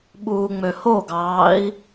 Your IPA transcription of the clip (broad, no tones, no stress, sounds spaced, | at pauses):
ɓ uː ŋ͡m ø h o ɡ ɑː i̯